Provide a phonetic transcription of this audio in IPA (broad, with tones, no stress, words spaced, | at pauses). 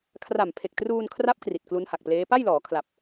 kʰra˨˩mpʰe˨˩k̚truː˧nkʰra˦˥p̚ kri˨˩t̚klu˦˥nha˨˩k̚pleː˦˥ pa˥˩jlɔː˩˦kʰla˨˩p̚